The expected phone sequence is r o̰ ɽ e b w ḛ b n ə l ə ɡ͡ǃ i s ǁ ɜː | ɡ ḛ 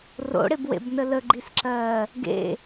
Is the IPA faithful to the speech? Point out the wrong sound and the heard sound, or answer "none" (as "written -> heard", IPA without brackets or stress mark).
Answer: none